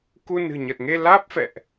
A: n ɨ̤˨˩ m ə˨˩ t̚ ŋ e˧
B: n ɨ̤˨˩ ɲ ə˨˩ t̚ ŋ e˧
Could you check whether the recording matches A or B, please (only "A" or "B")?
B